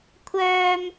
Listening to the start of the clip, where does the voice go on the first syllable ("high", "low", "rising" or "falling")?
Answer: high